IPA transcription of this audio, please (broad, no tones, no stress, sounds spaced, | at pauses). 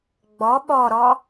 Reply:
ɡ͡b ɔ ɓ ɔ ɾ ɔ